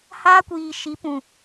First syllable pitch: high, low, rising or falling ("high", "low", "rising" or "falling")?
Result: high